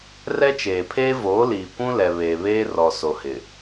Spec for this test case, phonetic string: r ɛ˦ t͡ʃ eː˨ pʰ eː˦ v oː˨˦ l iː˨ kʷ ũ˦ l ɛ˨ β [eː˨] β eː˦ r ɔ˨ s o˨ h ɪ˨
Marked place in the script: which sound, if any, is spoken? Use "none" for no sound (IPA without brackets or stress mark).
eː˨